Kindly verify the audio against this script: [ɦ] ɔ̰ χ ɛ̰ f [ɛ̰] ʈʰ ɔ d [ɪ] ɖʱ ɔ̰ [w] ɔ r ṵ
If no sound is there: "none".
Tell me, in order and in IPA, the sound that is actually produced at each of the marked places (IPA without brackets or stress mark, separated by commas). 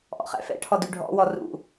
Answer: ʔ, ɛ̰, y, w